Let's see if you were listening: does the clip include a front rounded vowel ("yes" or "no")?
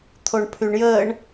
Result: yes